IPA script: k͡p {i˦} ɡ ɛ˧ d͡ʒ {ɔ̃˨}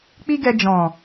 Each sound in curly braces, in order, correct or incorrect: correct, correct

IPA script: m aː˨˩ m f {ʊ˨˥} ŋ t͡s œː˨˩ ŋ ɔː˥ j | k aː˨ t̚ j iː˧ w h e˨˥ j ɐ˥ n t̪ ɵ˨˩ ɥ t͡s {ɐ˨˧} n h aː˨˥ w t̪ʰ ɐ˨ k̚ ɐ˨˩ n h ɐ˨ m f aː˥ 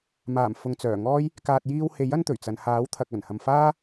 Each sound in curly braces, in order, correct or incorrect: incorrect: ʊ˨, correct

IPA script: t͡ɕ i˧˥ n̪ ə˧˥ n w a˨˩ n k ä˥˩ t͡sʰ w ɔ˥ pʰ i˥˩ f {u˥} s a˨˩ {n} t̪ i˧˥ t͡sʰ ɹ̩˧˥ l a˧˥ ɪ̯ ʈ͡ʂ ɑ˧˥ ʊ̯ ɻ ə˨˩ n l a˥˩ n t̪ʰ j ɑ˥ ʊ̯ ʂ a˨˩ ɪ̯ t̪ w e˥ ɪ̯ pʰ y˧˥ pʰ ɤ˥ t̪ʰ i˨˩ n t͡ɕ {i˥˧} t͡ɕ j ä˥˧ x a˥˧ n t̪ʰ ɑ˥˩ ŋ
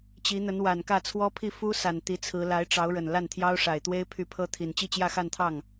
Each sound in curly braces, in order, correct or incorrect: correct, correct, correct

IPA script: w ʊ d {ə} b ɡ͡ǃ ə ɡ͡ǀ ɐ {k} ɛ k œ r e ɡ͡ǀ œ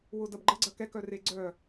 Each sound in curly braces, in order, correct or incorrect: incorrect: ɐ, correct

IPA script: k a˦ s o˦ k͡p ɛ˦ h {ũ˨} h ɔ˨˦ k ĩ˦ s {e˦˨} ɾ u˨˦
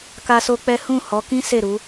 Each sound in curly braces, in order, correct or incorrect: incorrect: ũ˦˨, correct

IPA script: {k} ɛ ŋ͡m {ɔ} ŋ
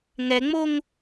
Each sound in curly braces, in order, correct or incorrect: incorrect: ŋ, incorrect: o

